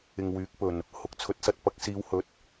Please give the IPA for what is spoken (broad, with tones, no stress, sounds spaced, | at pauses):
ɪ˨ ŋ w yː˨˥ k̚ p ɵ˨˩ n | h ʊ˨ k̚ t͡sʰ ɵ˨˥ t̚ s ɐ˨ t̚ p ɐ˧ k̚ s iː˨˧ w h ɵ˨˥ t̚